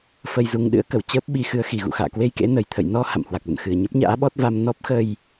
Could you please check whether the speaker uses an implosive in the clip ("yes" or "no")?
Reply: yes